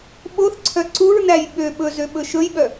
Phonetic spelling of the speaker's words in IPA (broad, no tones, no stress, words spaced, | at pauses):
ɓoθ ǀʰœǀuɹnæj ɓø ɓɵzø ɓɵʃɵjɓœ